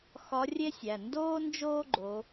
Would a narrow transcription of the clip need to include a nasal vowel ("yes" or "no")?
no